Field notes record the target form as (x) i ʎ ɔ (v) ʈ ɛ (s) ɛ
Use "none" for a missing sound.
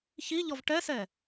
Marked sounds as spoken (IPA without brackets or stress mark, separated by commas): ç, v, s